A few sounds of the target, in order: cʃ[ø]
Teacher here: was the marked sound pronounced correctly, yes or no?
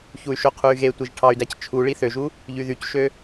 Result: yes